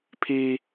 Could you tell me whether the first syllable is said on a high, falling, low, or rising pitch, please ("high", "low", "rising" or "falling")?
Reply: high